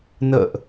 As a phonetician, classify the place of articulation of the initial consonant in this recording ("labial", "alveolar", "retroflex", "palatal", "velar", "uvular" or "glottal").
alveolar